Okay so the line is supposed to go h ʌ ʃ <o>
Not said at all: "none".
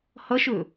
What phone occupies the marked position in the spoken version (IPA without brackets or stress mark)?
ɵ